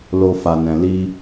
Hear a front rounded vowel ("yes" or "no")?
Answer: no